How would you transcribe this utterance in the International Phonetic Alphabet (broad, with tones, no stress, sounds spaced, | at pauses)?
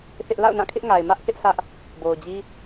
θ ɪ˦ ʔ l a̰˦˨ ʊ̯ n ã˦˨ kʰ ɪ˦ ʔ ŋ a˨ ɪ̯ m ä˦ ʔ θ ɪ˦ ʔ s ä˦ ʔ | b o˨ ʊ̯ d͡ʑ i˦